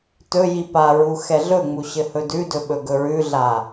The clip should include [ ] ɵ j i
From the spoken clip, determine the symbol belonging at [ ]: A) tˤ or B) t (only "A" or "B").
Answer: B